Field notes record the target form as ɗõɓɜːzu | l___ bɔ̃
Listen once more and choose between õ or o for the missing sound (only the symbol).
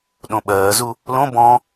õ